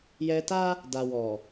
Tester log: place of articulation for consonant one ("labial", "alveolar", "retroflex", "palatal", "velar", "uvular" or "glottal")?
palatal